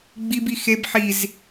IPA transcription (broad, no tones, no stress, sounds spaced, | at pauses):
ɡ͡b i b i x e b ħ i z